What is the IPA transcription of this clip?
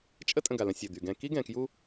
t͡ʃʼə˦tʼə̃˨ɡa˩lə̃˨ sʲə˩d̪y˩ɡɛ̃˨ki˦ ɡɛ̃˨kju˦

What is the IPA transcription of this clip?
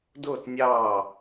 dʊː˥˧t nʲɑː˥˧

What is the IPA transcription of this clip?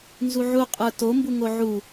nzuʕu qʼə˞to mbuŋoʕu

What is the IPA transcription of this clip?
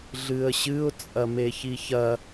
ɮɨə̯ɕɨʊ̯ t͡sʼɐmeçiçɐ

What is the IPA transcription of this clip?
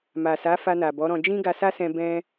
ma˨sa˨˦ fa˧na˨bɔ˨˦ɾɔ̃˧ d͡ʒĩ˦ɡa˧sa˦sɛ̃˧ bɛ̃˧

